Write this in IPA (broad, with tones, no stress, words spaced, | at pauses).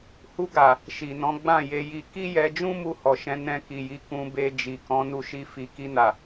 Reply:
hu˧ɡa˨ | ʃi˨nɔ̃˨˦ ɡ͡bã˦˨je˧ji˧ ki˦jɛ˧d͡ʒũ˦ mu˦˨hɔ˨ʃɛ̃˧ nɛ̃˧ki˨ji˨˦ kũ˧be˧ d͡ʒi˨kɔ̃˨˦ nu˦ʃi˦ fi˧ ki˧na˨